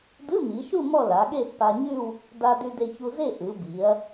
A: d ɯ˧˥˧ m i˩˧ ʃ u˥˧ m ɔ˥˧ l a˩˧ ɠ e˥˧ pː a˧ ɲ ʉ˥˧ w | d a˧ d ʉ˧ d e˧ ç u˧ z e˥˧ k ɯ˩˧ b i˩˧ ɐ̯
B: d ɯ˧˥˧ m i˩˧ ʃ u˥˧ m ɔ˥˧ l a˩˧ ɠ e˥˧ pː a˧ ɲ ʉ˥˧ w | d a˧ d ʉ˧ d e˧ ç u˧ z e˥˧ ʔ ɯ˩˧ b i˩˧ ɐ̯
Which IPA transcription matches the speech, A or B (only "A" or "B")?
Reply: B